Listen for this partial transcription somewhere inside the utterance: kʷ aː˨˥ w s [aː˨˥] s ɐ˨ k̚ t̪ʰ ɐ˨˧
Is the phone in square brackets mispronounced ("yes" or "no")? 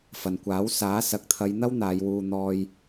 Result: no